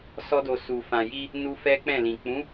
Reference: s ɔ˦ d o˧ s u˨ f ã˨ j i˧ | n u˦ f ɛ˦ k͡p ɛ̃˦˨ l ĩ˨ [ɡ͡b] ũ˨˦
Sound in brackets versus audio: incorrect: k͡p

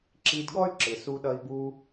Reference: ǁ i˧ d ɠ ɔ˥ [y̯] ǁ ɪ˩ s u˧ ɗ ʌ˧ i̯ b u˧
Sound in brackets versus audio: correct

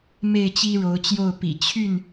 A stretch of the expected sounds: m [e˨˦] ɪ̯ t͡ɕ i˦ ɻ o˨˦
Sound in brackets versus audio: incorrect: e˥˨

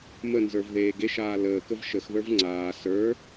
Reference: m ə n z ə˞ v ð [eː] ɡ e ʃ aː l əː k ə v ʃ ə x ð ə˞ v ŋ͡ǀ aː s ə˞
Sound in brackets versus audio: correct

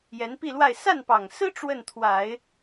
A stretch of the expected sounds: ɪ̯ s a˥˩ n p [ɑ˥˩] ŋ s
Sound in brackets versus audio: incorrect: ɑ˨˩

